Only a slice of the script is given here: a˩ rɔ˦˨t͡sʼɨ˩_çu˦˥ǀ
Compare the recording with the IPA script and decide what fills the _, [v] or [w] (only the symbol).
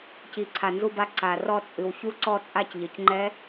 w